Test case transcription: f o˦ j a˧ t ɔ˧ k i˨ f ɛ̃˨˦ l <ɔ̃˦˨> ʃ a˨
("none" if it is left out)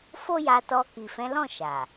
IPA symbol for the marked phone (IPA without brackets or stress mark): ɔ̃˦˨